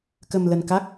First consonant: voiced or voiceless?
voiceless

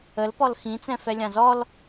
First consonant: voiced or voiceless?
voiced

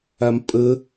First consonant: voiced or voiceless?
voiced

